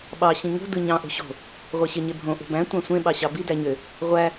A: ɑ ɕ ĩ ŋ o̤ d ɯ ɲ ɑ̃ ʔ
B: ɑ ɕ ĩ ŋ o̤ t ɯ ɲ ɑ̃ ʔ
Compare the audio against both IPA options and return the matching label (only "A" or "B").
A